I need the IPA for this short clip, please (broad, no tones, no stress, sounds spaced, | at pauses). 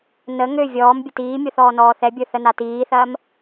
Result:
n ə ŋ ø vʲ ɔː m bʲ ə t iː mʲ o θ ɔː n ɔː θ ɛ bʲ ə˞ θ ə n a t iː θ ɐː m